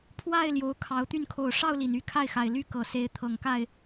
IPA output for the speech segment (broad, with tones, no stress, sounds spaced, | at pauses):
pʰ w a˥˨ ɪ̯ l j o˨˦ ʊ̯ kʰ ɑ˨˦ ʊ̯ t̪ y˥˨ n kʰ o˨˩ ʊ̯ ʂ ɑ˥˨ ʊ̯ l i˨˩ n y˦ kʰ a˥˨ ɪ̯ x a˨˩ ɪ̯ l y˥˨ k ɤ˨˩ s e˨˦ ɪ̯ t̪ʰ ɤ˨˩ ŋ k a˥˨ ɪ̯